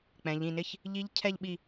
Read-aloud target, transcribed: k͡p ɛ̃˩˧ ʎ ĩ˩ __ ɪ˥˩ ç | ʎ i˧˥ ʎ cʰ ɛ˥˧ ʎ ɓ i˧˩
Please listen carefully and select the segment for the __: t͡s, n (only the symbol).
n